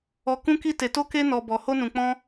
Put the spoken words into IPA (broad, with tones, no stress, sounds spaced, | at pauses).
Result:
ɔ˦ k ũ˦ k i˦ t e˧ t o˦ k e˦ n ɔ˧ b ɔ˧ h o˦ n ũ˧ k͡p ɔ̃˦